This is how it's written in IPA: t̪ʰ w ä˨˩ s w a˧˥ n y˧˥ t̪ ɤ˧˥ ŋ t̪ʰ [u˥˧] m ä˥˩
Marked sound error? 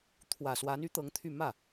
yes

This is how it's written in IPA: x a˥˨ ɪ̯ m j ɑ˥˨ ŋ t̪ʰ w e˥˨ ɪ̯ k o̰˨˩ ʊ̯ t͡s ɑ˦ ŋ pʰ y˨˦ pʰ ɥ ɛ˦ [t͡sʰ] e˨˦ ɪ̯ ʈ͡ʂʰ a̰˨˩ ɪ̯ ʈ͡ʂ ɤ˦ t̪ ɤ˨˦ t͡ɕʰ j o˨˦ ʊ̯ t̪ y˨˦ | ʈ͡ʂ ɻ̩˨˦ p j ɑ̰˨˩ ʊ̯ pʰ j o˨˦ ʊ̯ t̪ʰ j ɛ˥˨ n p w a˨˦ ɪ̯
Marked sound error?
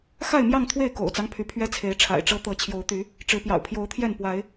no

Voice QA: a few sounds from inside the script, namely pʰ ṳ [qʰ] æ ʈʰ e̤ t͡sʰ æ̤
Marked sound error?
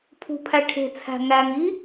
yes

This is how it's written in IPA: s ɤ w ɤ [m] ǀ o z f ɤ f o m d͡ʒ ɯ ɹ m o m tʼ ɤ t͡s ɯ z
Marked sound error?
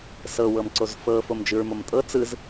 no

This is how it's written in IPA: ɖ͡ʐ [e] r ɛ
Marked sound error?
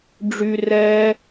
yes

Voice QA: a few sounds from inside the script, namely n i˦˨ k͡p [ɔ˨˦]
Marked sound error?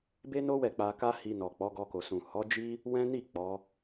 no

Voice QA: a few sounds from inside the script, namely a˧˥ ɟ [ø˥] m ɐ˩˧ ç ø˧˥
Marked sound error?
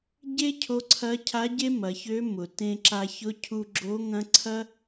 yes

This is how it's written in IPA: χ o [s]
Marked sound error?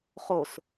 no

